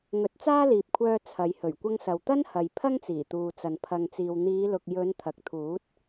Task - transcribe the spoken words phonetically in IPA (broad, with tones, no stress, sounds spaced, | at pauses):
ŋ ɵ˨˥ t̚ t͡s aː˥ l iː˨ p̚ kʷʰ œː˧ t͡sʰ ɐ˨˧ j h ɵ˨˩ ɥ kʷ ɐ˧ ŋ s ɐ˨ w t̪ ɐ˥ n h ɐ˨ j pʰ ɐ˥ ŋ t͡s iː˨˩ t̪ uː˨ t͡s ɐ˨ n pʰ ɐ˨ ŋ t͡s iː˨ w n̪ iː˨˧ l ʊ˨ k̚ j ɵ˨˧ n t̪ʰ ɐ˨ k̚ t̪ʰ uː˨˥ t̚